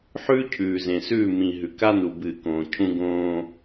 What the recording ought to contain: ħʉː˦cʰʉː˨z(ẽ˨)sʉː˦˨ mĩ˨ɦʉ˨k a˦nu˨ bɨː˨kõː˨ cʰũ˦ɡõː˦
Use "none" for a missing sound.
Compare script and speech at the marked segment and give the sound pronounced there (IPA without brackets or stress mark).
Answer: ẽ˨